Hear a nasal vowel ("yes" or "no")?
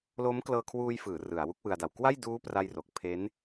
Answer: no